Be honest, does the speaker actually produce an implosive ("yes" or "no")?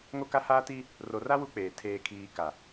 no